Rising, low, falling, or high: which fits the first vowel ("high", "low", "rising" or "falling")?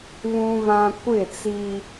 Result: high